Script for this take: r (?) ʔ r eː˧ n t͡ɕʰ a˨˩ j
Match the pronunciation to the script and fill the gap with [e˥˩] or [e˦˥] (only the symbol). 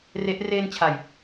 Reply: e˦˥